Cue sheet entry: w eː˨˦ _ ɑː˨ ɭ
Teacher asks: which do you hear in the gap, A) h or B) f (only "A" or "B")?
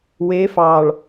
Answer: B